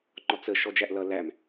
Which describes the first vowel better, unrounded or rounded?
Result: rounded